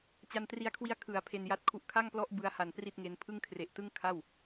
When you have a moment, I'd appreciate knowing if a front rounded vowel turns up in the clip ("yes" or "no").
no